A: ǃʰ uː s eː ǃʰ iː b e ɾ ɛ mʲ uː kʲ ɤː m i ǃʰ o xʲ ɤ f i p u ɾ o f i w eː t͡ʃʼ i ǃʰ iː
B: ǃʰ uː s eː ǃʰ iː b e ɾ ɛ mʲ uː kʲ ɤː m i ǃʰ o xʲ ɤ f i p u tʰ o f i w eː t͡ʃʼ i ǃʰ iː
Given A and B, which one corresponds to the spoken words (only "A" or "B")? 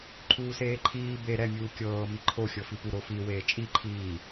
A